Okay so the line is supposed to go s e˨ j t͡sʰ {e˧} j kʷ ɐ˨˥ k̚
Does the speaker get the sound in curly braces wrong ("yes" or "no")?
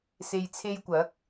no